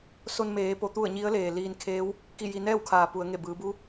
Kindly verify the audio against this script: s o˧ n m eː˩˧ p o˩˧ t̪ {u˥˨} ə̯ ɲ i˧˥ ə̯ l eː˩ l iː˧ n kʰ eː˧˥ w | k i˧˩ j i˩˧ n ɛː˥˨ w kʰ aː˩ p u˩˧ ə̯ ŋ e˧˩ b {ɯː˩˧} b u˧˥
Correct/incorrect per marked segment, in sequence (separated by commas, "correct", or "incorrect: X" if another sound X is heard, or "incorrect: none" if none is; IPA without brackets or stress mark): correct, correct